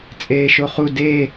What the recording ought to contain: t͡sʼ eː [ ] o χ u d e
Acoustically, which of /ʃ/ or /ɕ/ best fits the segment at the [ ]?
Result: ʃ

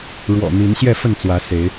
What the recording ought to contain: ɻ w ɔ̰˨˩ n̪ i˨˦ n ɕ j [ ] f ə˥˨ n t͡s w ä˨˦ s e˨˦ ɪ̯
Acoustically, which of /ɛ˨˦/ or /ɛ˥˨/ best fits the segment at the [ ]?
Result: ɛ˥˨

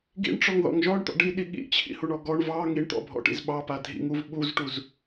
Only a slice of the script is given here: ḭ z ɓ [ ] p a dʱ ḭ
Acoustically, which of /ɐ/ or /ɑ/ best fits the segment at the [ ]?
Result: ɑ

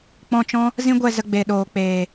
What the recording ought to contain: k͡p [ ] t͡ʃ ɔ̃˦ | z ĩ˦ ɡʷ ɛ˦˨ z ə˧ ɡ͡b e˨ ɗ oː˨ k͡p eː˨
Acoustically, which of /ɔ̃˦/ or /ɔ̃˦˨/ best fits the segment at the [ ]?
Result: ɔ̃˦˨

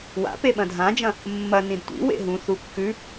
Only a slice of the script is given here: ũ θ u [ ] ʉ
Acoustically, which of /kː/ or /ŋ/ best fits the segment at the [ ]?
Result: kː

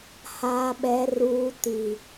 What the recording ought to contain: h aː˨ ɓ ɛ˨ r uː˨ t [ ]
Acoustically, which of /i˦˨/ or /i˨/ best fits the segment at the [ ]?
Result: i˨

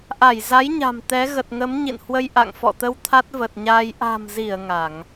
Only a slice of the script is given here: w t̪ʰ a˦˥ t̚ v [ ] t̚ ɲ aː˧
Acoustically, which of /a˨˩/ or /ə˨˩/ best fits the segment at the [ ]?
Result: ə˨˩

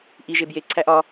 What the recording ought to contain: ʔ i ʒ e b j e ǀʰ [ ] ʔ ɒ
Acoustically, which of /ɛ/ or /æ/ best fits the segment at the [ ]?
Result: æ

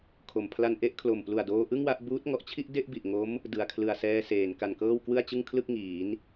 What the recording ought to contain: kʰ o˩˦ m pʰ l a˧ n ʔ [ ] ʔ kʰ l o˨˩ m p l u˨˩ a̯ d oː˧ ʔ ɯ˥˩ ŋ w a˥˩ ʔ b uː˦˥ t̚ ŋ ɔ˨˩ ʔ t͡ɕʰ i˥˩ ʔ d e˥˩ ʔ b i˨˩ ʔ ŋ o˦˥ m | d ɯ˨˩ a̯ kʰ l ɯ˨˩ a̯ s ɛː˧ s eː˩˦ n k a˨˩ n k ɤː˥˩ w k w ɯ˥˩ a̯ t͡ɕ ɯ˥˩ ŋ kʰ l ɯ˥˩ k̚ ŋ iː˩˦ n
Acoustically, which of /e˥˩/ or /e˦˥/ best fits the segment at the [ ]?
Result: e˦˥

